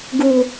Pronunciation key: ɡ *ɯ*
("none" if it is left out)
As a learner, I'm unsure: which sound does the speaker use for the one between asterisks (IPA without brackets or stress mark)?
u